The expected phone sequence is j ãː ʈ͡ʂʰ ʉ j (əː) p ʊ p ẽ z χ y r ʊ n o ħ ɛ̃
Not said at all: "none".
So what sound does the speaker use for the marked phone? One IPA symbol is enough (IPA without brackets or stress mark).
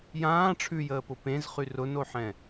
əː